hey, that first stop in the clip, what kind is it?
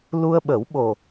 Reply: implosive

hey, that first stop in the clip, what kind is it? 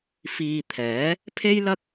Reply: aspirated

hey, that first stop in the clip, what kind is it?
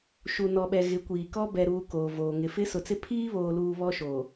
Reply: implosive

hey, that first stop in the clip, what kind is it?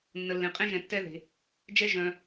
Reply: ejective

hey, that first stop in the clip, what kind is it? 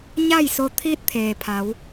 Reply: aspirated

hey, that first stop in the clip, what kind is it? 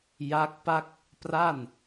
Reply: plain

